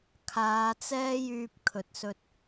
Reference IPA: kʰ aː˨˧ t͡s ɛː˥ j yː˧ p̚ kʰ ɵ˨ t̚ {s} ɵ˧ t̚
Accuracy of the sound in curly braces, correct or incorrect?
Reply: correct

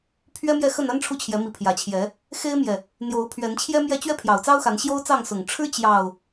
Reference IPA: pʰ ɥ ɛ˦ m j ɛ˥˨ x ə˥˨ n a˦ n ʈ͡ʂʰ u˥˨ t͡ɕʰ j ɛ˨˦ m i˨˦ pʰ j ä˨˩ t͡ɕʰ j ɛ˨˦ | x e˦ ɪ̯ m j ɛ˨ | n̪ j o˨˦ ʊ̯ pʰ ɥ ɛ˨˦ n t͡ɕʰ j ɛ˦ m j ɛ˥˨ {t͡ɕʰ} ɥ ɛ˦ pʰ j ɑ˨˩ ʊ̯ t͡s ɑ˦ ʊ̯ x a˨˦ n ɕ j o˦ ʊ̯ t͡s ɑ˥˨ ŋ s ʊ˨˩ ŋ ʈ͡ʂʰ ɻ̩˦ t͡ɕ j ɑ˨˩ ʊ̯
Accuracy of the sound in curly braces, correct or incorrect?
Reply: incorrect: t͡ɕ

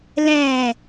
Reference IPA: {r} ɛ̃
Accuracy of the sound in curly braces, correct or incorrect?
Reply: incorrect: l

